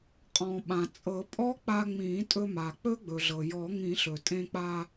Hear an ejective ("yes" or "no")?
yes